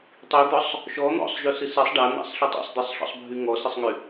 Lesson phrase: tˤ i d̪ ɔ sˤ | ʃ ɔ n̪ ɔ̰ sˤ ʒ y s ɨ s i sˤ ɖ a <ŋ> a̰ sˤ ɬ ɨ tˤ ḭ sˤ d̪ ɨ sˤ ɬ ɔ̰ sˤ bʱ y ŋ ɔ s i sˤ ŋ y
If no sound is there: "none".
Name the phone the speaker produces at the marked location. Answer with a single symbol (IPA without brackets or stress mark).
n̪